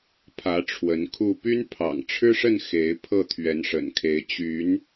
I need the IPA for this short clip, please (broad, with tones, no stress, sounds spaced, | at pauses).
pʰ ä˨˦ ʈ͡ʂʰ w ə˨˦ n kʰ u˥˨ p y˦ n pʰ ɑ̰˨˩ ŋ ʈ͡ʂʰ ɻ̩˦ ʂ ə˥˨ n x e˨˦ ɪ̯ pʰ ɤ˥˨ t̪ʰ ɥ ɛ˨˦ n ʂ ə̰˨˩ n kʰ e˨˦ ɪ̯ t͡ɕ y˨˦ n